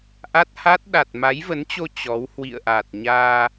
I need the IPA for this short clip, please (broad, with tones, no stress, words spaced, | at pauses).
ʔa˦˥t̚ha˦˥t̚ ɗa˨˩t̚ma˨˦jvə˨˦nt͡ɕo˧ t͡ɕɔ˨˦w hwḭ˧˨ə̯ʔa˨˩t̚ ɲaː˧